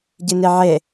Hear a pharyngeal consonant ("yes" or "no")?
yes